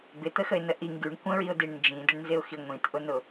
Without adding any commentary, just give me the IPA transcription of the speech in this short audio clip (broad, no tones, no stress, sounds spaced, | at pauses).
b ɪ t̪ ə x ə ɪ̯ n ə ʔ i ŋ ɡ y ɳ kʷ ə̃ ɹ i ʊ̯ d i ɳ n d͡ʒ ĩ d ɪ ɳ n z ɪ ʊ̯ x i ŋʷ ĩ t ʔ ʊ n ʊ